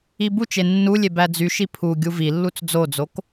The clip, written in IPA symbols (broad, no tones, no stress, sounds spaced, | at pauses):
i b u t͡ʃ e nː u lʲ e b æ d͡z y ʃ i pʰ u ɡʲ u v i lː u t͡s d͡z o d͡z o k